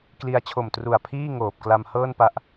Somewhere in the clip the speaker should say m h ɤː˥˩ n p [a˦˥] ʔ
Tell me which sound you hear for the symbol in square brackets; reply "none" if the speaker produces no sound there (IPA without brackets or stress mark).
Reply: a˦˥